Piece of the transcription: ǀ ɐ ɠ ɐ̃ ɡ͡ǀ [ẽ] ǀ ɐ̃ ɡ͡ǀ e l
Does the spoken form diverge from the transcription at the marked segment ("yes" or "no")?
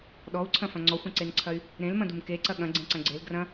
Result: no